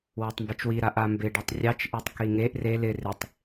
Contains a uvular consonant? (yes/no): no